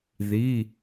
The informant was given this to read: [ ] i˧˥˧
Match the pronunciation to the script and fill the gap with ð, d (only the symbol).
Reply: ð